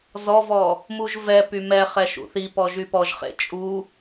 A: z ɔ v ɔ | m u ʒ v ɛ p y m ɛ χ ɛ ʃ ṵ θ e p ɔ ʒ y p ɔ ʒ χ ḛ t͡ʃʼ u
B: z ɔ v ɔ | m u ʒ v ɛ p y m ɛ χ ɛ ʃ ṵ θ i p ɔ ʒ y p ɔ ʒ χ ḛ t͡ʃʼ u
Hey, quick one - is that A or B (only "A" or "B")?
B